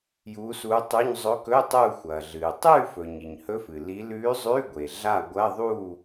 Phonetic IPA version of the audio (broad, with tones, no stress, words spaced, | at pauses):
juː˧˥suː˧˥tˤʉ˧˥˧ɲ zˤɵ˧˥kɵ˧˥˧ tˤuː˥˨xʷɐː˩ɮɨː˩ tˤʉː˥˨fɵ˩ ɲi˩ɲhɵ˧˥fɨ˩ li˧˥ lʉː˧˥zˤʉː˧˥˧ɡʷe˩ ɮa˥˨ɡʷɐ˧˥˧ðˤuː˥˨